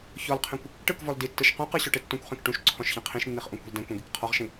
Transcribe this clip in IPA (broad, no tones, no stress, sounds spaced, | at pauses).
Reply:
ç ɔ l qʰ ẽ kʷ | ʈ ɯ k v ɔ l d i tː ɯ ʃ q ũ q ɯ ɕ ɔ ʈ e tː ũ kʷ χ ẽ k ʈ ũ ʃ ǀʰ ɔ̃ ʃ ç ɛ̃ qʰ ĩ ʃ nː i χ ʔ ũ kʷ e̤ l d ɛ̃ kʷ ɛ̃ ɡ i k qʰ ɔ ʁ ʃ ĩ